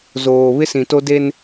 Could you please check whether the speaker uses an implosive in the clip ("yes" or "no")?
no